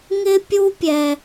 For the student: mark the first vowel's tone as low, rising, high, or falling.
high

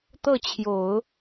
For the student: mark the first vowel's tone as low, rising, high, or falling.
falling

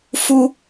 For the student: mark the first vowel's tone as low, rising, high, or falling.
high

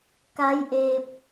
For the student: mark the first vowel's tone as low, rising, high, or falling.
rising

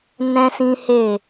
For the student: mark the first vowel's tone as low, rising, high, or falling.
high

